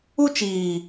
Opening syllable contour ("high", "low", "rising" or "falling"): high